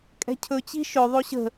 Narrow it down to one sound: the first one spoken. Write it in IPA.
kʼ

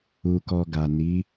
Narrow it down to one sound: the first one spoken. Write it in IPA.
u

